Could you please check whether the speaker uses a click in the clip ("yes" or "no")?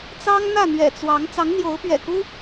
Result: no